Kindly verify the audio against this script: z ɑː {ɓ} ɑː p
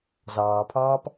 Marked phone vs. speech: incorrect: pʰ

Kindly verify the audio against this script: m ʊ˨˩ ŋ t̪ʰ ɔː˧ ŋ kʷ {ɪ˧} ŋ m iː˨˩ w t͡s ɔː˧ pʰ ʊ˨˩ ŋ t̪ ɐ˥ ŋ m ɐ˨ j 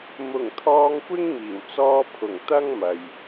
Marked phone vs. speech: incorrect: ɪ˥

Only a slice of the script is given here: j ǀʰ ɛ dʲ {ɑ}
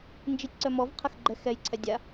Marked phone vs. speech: incorrect: a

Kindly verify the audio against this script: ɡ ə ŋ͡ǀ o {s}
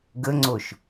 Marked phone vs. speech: incorrect: ʃ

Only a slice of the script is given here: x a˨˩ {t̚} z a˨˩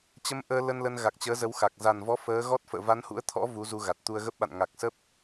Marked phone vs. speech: incorrect: k̚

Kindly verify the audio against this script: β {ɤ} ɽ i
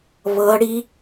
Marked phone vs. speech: correct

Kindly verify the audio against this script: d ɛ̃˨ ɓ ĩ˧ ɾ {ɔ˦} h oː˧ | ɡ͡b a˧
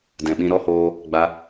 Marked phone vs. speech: correct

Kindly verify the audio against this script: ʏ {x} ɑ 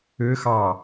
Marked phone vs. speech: correct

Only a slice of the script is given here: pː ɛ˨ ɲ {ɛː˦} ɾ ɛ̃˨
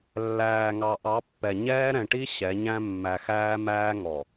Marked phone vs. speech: correct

